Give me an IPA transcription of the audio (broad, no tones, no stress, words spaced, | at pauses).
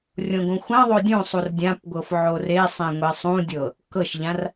rʲõɡõxʷãðˤo dʲũ sˤurdʲãpɡʷɤf ʕoresˤẽ ŋʷesˤũdʲɤ | kɤʃʎãr